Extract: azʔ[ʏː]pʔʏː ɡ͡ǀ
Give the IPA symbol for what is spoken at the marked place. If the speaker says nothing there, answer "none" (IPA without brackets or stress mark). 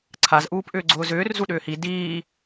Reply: uː